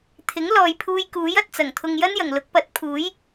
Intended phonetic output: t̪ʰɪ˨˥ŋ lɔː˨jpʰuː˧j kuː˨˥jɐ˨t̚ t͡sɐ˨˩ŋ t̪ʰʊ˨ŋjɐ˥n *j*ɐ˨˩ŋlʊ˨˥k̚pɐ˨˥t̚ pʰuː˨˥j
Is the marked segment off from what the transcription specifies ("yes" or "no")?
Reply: no